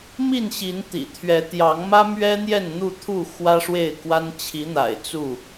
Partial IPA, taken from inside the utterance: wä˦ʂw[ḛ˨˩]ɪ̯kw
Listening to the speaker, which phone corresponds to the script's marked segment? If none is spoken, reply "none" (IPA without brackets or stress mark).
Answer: e˥˨